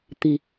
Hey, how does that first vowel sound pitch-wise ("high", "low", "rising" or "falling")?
low